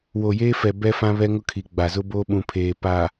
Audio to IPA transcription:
w o˨ j eː˦ f ɛ˨ b ɛ˦ f ã˦ β ɛ˦ ŋ ʊ˦ kʰ i˨ ɡ͡b a˨ z ʊ˦ b o˦ ɓ ũ˨ pʰ eː˨ p a˨

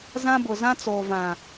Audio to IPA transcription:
z ã˦ b ʊ˨ z ã˦ t͡s oː˨ v ã˨

